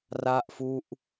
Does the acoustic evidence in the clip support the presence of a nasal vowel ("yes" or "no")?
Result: no